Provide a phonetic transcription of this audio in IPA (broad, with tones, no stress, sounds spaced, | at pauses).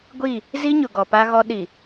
ɡʷ i˦˨ | z i˦ ɲ ʊ˨ ɡ ɔ˨ p a˦ ɣ ɔ˦ ɗ i˨